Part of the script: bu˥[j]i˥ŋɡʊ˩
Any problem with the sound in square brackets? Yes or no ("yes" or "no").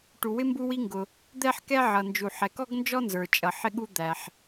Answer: yes